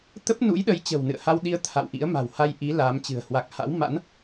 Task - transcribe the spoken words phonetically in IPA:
t̪ə˦˥p̚nṵ˧˥jɗə˨˦j t͡ɕə̤˨˩wnɨ̰˧˨ə̯ha˧w ɗi˧ə̯ t̪ʰa̰˧˨wʔḭ˧˥ə̯ma̤˨˩w ha˧jʔi˨˦ laː˨˦mt͡ɕɨ̤˨˩ə̯ hwa˨˩k̚ha̰˧˥wma̰˧˥n

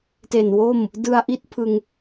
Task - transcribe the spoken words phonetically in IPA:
te˨˩nwo˥˩m | dɯ˧a̯ʔi˥˩t̚pʰɯ˧ŋ

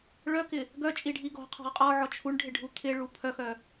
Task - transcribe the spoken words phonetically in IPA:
ɭœkɪ | ɡœt͡ʃʼiɖʱi ɡɔ̤qʰɔ̤ʁ qʼɔʕɔ t͡ʃʰuɳɖʱɪɖʱu t̪ʰɪɭu pʰœxœ

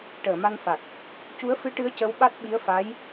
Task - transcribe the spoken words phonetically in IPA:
ʈəː˨˩˨ma˧nfa˨˩k̚ | cu˧˥ə̯fɨ˧˥ʈɨ˧˥ə̯ cə˧˥wɓa˦˥t̚ ɓi˧˥ə̯fa˧˥j

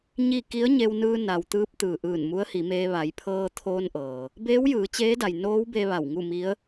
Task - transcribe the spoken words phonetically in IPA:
ɲi˥˨ ki˧˥ə̯ɲe˧wnɯː˧ na˩wt̪ɯː˧˥p̚t̪ɯː˩ ʔɯː˧˩nmu˧˥ə̯hi˩˧meː˧ ʋa˩˧jpʰɤː˧t̪ʰoː˧nʔɤː˩ | beː˧˥wjɯː˩˧ t͡ɕeː˧˥da˩j noː˧˥wbe˧ ʋa˧˩wŋu˥˨mi˧˥ə̯

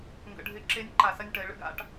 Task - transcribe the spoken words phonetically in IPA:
ŋɡə̰˨ɖʱɪ˨˦ǁe˨˦nʲ ǃa˨sɐ˥˧nʲʈɐ˨˦ɪ̯ ɭə̰˥ɡa̰˧˥˧ʈ

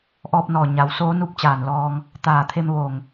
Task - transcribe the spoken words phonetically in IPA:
ʔɔː˧p̚nɔː˧˩ ɲa˩˧wsoː˧˥ nu˧˥p̚t͡ɕaː˧˩n lɔː˧ŋ | t̪aː˧˩t̪ʰe˧mʋo˧˩ŋ

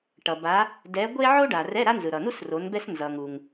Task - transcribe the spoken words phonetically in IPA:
ʈʌ˩ba˨˦ | dɛ˨˦ɡʷe˥ ʕo˥ɖa˩rɛ˧˥˧ ɾa˥nzɯ˩ɾʌ˩nu˥s ro˨˦nbɛ˥s nzʌ˩ŋu˩ŋ

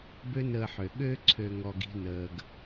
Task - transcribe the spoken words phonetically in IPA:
bø˦nəː˧ħø˨ ɠø˧ǀʰø˨ŋɔ˨ɡ i̤˧nəː˨ɡ

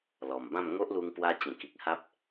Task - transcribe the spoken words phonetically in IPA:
lɔ˨˩mbã˥˧m ŋo˦ʔlu˧ŋ pwa˦ t͡ɕẽ˨˩ki˨k̚ ha˦p̚

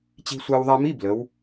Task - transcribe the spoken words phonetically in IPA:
t͡ɕi̤˧sʷa˧w ðˤa˧mi˧˥˧ blə˩˧w

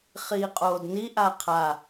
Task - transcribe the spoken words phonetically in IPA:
χiːqʼoːdni ʔaqʰa

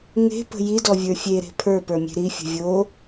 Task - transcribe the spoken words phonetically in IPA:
ŋe̤pə̤ jidɔvʲə˞ fʲeɾe̤ pʰə˞pə˞mʲe̤ ɾifʲə̤ vʲo

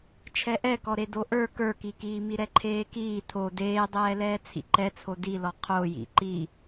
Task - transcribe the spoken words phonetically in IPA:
t͡ʃʰɛʔɛkɔ ɾedoʔə˞ kə˞kikiː miɾɛǃʰeːkiː tʰo deːdˤɛːlɛː t͡sʰḭǃɛt͡sʰo dilɔ qʰojḭ ǃi

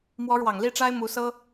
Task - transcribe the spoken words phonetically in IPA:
mwɔ˧˥ɻwɑ˨˩ŋli˥˩ʈ͡ʂa˥ɪ̯ mu˧˥sɤ˥

